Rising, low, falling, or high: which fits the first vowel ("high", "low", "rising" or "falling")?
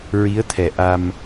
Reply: rising